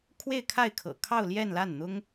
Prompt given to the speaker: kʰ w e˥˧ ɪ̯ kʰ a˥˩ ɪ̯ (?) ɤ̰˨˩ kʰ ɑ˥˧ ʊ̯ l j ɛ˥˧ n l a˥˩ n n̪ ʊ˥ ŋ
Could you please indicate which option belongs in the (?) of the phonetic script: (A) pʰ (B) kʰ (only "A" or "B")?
B